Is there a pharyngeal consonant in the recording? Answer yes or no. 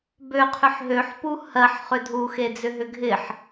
yes